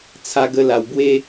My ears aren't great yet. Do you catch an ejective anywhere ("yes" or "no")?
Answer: no